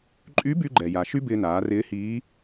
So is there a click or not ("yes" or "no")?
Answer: yes